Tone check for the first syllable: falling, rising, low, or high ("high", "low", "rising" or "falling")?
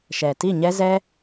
low